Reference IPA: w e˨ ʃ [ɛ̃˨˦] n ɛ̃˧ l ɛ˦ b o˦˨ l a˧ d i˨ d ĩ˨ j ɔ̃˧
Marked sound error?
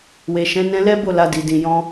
no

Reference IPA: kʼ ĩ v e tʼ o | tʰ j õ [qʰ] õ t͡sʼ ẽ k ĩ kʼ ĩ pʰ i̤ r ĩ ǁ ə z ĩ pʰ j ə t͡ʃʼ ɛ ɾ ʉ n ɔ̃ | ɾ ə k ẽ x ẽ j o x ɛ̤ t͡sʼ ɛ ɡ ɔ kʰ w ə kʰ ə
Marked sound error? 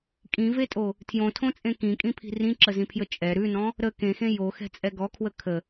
yes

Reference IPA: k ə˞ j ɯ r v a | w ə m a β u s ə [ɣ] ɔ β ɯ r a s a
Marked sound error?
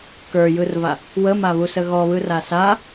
no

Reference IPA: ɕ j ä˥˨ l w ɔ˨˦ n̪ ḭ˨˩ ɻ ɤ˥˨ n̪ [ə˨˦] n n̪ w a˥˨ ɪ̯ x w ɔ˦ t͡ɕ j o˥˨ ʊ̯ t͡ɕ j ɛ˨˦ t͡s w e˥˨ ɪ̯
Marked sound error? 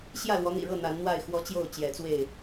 yes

